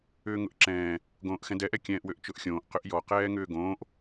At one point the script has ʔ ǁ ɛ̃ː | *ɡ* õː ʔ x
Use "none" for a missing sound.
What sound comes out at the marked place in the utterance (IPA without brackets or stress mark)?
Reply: ɡ